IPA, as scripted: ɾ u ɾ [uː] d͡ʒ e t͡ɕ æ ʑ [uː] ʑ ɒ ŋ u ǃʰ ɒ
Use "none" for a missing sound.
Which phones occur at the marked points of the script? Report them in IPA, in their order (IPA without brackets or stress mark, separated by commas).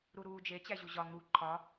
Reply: uː, u